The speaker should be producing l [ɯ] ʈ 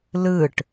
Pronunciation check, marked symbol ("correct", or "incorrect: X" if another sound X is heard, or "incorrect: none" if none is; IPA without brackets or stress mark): correct